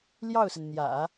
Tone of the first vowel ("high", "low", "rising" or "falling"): falling